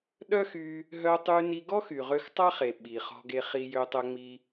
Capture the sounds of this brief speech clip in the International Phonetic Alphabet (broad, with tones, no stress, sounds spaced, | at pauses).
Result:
ɗ œ˥ x y˧ | ɦ œ˧ tˤ y˧ n i˧ ɡ ɔ˥ x y˩ ʁ ø˧ x tˤ a˥ χ e˩ ɓ i˩ χ ɔ̤˧ ɡ e˧ χ i˧ j ø˧ tˤ œ˧ ŋ͡m i˧